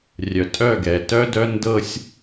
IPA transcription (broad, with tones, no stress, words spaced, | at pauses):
rʲœ˨tʼœ˦˨ɡɛ˨ tœ˦dœ˦ ndɤ˦sʲ